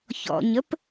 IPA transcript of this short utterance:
ç ɔ̰ ɲ ə p

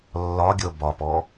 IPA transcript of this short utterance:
lː ɒ ɡʲ ɤ b ɒ p ɔ

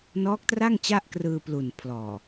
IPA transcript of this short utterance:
n ɔː˦˥ k̚ t r a˥˩ ŋ t͡ɕ a˥˩ ʔ k r ɯː˧ p l u˨˩ n pʰ l ɔː˨˩

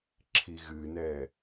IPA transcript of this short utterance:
ǁʰ i ɣ ɨ n ɛ

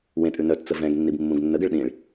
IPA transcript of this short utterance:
w ẽ tʼ ʉ n œ t t͡s ə v ɛ̃ ɡ nː i b mː ũ ɡ nː ə ɡ ə ɭ ɗ ĩ ɭ

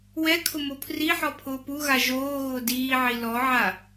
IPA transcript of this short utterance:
w ɛ kʰ ʊ m o pʰ r i ħ ɔ pʰ ʊː p u ɣ a ʒ oː ɣ ʊː d iː ʕ i l ɔ ʕ a

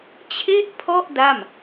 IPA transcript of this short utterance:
t͡ɕʰ e˥˩ ʔ pʰ ɔ˥˩ ʔ d a˥˩ m

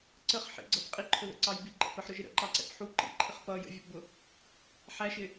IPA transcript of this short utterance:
ǀ ə χ ħ ḭ ɡ͡ǀ ʌ b qʼ i ǃʰ ʊ ð ə̰ ǀ ɑ j b i ǃ ə̰ p ə ħ ɾ ʊ ʒ ɪ ɾ ə̰ ǃ ɑ ǀ ɛ̰ p ħ u ǃ ḭ ǃʰ ɪ χ p ʌ j ə̰ vʲ ʌ p b ʊ | ħ æ ʃ ɪ

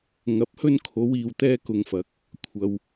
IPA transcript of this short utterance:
ŋ ɐ˨˥ p̚ h ɵ˧ n kʰ o˨˧ w iː˨ w t̪ ɛː˧ k ʊ˨ ŋ f ɐ˨˥ k̚ | kʷʰ ɐ˧ w

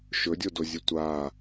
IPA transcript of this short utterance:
ʃ ɵ dʲ o d o zʲ ɨ tʷ a

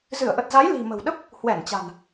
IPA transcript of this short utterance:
z ɨ˧˩ ə̯ ʔ ə˨˩ t̚ z a˨˦ j l i̤˨˩ m ə̤˨˩ w ɗ ə˦˥ p̚ | h w ɛ˧˩ n t͡ɕ a̤˨˩ n

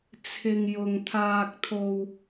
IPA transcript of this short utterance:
t͡sʰ ɪ˨ ŋ j ʊ˨ ŋ t̪ʰ aː˧ k̚ t̪ʰ o˧ w

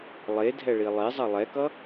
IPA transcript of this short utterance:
lˠ e dʱ ɛ ɭ i lˠ e zˤ ʌ lˠ ɛ k ʌ

